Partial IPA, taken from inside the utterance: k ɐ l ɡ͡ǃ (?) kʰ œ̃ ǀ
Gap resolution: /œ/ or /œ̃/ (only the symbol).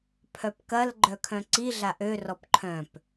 œ